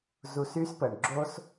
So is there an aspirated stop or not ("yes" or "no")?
no